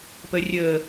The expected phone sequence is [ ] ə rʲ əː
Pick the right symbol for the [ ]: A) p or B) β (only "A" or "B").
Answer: A